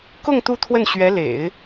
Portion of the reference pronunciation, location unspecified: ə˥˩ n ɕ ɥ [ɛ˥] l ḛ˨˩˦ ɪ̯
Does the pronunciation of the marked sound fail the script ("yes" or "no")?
yes